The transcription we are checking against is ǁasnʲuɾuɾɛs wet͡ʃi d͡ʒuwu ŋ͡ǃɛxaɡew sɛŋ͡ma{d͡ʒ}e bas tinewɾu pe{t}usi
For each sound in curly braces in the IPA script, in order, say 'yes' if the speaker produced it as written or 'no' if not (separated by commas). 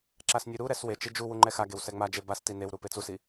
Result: yes, no